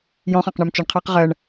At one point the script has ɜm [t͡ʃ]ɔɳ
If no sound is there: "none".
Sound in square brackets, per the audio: t͡ʃ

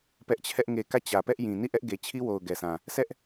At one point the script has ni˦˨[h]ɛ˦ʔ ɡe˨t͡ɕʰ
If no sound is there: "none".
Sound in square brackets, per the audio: ʔ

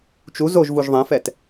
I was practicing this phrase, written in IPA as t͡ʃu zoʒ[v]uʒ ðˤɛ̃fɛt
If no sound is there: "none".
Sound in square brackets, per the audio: v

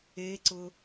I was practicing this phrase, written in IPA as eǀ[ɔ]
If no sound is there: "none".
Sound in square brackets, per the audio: ʊ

